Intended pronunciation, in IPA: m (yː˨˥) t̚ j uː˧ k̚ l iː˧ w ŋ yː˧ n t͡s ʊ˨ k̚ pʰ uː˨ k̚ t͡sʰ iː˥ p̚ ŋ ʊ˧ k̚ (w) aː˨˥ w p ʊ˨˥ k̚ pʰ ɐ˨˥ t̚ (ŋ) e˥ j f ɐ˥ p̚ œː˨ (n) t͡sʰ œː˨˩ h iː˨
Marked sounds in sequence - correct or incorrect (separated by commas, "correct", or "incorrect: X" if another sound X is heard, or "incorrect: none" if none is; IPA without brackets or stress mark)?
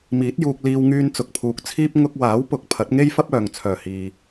incorrect: iː˨˥, correct, correct, incorrect: ŋ